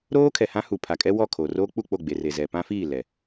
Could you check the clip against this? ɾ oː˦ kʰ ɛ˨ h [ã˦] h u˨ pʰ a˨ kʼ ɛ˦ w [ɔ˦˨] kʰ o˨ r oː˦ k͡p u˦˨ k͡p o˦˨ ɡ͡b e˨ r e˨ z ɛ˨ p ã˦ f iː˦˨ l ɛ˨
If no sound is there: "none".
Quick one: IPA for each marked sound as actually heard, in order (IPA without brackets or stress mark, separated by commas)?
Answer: ã˦, ɔ˦˨